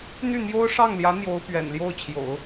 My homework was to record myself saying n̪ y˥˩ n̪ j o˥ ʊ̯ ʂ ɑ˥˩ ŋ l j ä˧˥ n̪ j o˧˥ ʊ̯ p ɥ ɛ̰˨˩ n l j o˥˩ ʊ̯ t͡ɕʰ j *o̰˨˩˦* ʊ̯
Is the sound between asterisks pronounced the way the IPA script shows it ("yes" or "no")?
yes